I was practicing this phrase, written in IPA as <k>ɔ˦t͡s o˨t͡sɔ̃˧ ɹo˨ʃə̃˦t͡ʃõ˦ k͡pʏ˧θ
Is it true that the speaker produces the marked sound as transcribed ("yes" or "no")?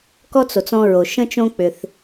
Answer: yes